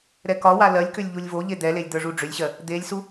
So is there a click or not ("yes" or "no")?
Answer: no